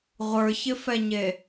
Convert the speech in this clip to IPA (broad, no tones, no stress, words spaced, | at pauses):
ʁʷə˞çɪfɛɲe